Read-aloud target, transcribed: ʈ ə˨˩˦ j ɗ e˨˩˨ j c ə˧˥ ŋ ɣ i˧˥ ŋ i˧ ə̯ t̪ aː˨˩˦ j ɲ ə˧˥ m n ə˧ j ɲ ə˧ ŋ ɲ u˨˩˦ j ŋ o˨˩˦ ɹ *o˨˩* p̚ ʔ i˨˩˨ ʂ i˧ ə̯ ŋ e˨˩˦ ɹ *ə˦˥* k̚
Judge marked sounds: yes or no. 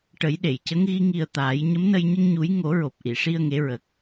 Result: yes, no

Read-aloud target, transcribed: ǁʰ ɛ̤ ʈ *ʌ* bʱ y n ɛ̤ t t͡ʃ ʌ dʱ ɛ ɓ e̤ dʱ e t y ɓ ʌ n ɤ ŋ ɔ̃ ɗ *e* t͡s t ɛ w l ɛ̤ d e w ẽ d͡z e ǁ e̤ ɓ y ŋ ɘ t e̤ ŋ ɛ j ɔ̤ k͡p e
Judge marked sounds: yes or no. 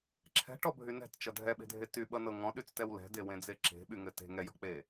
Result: no, no

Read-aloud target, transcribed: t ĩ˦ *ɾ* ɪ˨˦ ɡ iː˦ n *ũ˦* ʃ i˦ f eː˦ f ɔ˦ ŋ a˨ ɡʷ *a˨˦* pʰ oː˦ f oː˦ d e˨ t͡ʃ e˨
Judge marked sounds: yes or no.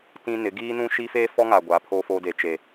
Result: no, yes, yes

